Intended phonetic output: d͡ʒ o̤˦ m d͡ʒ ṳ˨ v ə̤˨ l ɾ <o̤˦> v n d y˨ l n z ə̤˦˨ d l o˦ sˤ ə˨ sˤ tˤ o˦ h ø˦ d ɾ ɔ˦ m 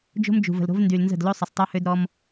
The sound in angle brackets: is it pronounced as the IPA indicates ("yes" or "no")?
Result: yes